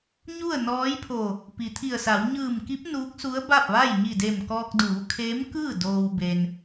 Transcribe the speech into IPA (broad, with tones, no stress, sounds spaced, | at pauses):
ɲ u˥˨ ə̯ n ɔː˧˥ j pʰ o˧˩ | p i˩ t̪ʰ i˧˩ ə̯ s a˩˧ w ɲ ɯː˧˩ m k i˧˥ p̚ n uː˧˥ k̚ s u˧˥ ə̯ b a˥˨ p̚ ʋ a˥˨ j ɲ i˧˩ d e˧˩ m k ɔː˧ k̚ d uː˩˧ kʰ eː˧˥ m k ɯː˥˨ d oː˧ w b e˧ n